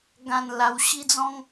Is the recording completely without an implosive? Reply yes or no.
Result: yes